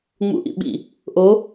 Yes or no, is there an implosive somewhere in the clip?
yes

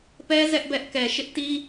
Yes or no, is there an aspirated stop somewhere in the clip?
no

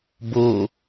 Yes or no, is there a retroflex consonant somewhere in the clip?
no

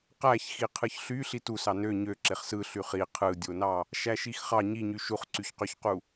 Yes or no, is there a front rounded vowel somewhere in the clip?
yes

